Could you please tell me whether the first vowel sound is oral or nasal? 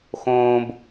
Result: nasal